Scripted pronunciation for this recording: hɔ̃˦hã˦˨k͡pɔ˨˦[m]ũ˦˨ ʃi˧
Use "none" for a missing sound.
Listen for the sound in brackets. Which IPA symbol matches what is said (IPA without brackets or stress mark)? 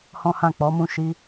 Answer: m